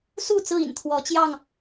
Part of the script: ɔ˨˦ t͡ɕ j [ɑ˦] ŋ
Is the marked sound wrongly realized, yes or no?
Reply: yes